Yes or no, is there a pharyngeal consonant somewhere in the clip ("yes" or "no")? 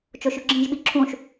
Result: no